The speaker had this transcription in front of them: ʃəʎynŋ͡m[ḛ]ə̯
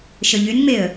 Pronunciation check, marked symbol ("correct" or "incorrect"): incorrect